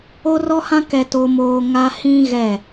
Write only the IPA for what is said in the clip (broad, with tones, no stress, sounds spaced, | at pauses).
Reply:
o˦ r ɔ˦ h ã˦ k ɛ˦ t o˦ m oː˦ ŋ a˦ h ĩ˦ ɣ ɛ˦˨